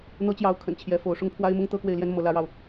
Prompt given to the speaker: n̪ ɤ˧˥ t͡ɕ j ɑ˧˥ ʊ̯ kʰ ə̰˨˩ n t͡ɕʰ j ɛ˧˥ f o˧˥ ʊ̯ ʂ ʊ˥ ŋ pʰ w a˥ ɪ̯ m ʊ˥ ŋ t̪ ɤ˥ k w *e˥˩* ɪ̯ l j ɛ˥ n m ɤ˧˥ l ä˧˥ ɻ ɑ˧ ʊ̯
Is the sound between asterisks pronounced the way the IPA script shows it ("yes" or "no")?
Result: yes